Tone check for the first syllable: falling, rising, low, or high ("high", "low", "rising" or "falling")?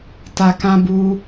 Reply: low